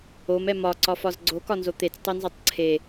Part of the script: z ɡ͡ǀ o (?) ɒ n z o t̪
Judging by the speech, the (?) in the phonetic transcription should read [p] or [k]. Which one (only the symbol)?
k